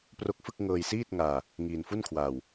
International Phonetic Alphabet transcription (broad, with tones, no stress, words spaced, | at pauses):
pro˦˥k̚fɯ˥˩k̚ŋɤː˧j siː˥˩t̚ŋaː˧ | ŋiː˧nfu˥˩nkʰwaː˧w